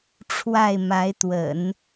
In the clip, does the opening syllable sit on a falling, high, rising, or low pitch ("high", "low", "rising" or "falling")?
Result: falling